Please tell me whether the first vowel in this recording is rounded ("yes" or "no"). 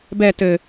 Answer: no